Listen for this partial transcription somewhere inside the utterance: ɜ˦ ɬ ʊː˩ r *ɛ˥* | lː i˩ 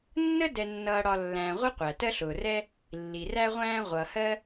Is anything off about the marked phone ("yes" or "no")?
yes